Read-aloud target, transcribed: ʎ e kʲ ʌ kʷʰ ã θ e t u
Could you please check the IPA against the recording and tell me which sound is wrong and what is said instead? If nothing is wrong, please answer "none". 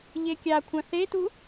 ʌ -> a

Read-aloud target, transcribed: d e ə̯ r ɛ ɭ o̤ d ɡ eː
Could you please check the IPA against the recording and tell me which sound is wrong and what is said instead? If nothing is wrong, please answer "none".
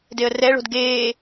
none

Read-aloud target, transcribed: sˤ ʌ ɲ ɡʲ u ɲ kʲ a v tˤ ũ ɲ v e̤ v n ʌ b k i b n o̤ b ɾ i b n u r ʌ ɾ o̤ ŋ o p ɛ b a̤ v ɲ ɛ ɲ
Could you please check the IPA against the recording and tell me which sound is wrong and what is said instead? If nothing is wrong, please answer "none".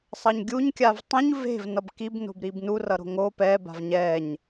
none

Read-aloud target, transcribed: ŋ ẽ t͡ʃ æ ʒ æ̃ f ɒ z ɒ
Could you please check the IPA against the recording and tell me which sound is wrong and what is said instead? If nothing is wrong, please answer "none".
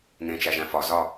none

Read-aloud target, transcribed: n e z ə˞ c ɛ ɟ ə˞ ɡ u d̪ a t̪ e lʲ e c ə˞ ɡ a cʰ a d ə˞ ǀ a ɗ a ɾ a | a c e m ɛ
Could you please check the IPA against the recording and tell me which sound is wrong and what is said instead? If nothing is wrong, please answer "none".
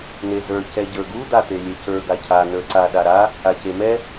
d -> n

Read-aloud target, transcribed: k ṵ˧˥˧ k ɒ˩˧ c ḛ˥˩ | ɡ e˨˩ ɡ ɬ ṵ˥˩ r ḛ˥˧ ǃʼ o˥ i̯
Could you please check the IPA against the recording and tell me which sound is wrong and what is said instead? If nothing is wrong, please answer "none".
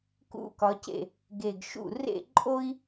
ɬ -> ʃ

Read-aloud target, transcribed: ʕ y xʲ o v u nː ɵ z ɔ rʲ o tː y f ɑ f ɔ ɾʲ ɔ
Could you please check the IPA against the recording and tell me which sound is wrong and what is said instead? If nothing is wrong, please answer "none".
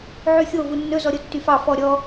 rʲ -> ɾʲ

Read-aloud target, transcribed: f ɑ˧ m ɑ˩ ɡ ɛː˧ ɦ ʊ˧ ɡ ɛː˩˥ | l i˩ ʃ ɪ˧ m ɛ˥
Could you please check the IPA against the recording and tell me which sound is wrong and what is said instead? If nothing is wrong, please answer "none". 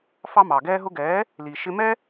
none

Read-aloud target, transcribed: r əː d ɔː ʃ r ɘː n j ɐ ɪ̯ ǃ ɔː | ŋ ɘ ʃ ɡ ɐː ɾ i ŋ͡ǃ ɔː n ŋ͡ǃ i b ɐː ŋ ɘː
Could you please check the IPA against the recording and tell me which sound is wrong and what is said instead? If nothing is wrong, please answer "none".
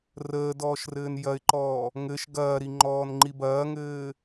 none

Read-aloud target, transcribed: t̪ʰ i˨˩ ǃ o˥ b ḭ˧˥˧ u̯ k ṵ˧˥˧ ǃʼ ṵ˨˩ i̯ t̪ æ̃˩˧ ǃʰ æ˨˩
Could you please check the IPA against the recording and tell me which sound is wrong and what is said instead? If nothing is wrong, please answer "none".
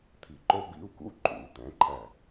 none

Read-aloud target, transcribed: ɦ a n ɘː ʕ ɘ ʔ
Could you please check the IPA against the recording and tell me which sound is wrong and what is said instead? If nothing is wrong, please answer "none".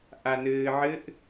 ɦ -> ʔ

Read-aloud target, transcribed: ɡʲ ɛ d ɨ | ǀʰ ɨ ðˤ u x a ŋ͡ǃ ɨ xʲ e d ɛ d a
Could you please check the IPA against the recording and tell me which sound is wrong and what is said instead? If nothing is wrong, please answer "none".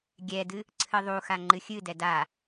e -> ɨ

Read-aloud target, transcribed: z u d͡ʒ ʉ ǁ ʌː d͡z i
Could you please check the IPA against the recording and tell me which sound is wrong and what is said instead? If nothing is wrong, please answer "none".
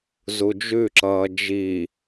d͡z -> d͡ʒ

